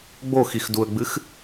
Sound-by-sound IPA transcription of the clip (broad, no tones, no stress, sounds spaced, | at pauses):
ɡ͡b o x i x d u ə̯ ɡ͡b ɨ x